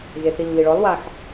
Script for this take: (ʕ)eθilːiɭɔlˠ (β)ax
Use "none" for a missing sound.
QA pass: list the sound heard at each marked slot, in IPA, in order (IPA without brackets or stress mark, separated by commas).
ɣ, w